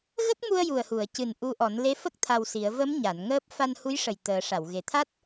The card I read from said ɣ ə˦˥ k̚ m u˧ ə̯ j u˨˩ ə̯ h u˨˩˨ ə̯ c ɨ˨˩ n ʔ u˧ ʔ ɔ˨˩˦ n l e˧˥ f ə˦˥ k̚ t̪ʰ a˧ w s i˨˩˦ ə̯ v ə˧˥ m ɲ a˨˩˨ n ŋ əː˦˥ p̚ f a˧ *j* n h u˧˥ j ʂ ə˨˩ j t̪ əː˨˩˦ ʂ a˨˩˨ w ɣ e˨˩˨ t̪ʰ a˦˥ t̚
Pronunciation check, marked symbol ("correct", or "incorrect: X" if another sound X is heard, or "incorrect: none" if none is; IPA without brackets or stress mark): incorrect: none